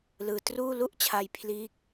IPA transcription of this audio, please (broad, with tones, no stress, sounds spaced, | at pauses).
l ɯː˧ t r uː˥˩ l u˥˩ ʔ t͡ɕʰ a˧ j pʰ l iː˦˥ k̚